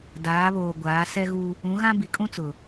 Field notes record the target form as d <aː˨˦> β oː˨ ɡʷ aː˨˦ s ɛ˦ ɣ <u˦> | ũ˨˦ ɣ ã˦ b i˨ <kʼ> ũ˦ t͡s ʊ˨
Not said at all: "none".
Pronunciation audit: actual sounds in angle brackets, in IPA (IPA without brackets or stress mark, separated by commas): aː˨˦, u˦, kʼ